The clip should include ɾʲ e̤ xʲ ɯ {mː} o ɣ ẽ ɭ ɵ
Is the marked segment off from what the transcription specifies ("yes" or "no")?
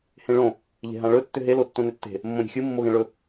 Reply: no